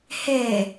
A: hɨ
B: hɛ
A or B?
B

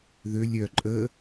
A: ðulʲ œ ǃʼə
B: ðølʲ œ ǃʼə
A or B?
B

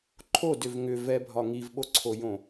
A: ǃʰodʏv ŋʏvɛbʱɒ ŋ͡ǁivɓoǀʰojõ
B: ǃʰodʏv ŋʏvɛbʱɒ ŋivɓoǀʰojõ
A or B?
B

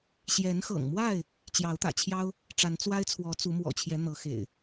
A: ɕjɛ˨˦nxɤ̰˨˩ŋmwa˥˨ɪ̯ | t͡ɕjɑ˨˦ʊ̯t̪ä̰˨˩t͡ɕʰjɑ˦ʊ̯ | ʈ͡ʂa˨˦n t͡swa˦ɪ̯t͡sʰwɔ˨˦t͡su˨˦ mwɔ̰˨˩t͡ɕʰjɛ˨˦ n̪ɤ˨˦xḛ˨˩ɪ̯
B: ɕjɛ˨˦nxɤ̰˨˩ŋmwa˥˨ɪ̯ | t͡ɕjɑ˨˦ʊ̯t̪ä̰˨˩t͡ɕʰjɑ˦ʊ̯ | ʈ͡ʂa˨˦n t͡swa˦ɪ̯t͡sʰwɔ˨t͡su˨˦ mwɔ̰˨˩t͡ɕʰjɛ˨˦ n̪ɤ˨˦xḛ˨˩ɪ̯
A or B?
A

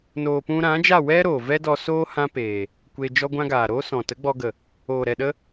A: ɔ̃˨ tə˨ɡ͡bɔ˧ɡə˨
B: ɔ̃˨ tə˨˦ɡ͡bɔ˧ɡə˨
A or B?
B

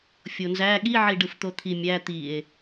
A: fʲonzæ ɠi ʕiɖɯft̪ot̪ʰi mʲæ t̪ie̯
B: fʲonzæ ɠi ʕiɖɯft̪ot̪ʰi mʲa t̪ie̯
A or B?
A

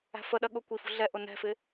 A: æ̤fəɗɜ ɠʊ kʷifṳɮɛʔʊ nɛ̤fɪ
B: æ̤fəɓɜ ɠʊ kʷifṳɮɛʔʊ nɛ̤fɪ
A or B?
A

